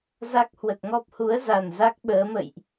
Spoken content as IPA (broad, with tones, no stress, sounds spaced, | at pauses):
z a˦˥ k̚ h w ə˨˩ t̚ ŋ ɔ˦˥ p̚ h u˨˦ ə̯ z a˨˩ n z a˦˥ k̚ ɓ əː˨˦ m ə̰˧˨ j ʔ